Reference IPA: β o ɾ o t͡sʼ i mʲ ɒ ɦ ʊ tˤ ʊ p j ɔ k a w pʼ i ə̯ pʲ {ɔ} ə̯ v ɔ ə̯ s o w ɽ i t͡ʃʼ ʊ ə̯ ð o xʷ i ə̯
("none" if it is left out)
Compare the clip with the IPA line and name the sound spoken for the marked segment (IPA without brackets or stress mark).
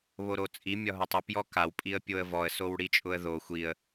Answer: o